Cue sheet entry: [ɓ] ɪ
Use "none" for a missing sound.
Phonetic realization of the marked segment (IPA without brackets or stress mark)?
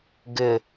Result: ɡ